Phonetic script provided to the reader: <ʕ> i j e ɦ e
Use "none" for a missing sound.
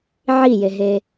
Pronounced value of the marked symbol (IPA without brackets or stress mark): ʕ